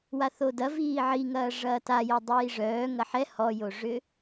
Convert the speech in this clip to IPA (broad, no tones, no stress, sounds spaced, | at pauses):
w a θ o d ɐ v iː ʕ i ŋ ɐː ʐ ɐː t a j ɛ dˤ iː ʐ œː ŋ ɐ ħ ɛ h ɔ j o ʐ ʏ